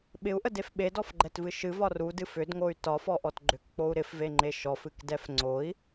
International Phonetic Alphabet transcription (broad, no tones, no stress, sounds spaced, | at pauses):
ɓ ɪ u̯ ʔ ə d e f ɓ e d ɔ f ɡ͡ǃ ɛ t v ɨ ʃ ɨ v ɒ r u d ɨ f ʏ d ŋ o y̯ t ɒ f ɔ ʔ ɔ t ɡ͡ǃ ʏ k k͡p o u̯ ɾ ɪ f v e ŋ͡ǃ e ʃ ɔ f ɨ k d ɛ f ŋ͡ǀ o i̯